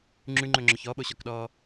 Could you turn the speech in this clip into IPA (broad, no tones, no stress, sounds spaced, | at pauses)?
ŋ͡ǁ ʉ ŋ͡ǃ ɵ ŋ͡ǁ ɔ ç ɔ ɓ o ɕ ɔ k ɗ ɔː